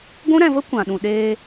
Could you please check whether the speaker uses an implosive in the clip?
yes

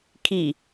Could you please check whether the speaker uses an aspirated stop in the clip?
yes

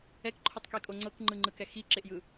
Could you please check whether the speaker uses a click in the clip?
yes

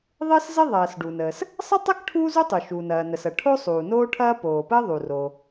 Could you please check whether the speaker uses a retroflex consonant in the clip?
yes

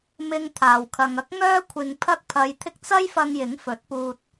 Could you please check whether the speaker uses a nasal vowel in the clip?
no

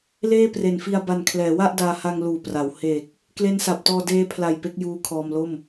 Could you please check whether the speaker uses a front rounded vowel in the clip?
no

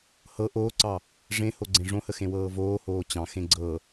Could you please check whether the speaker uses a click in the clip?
yes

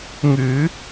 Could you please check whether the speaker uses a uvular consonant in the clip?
no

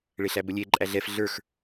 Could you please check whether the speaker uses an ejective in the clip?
yes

